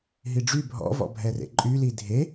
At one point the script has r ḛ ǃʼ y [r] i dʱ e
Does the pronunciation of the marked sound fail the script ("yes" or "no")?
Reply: yes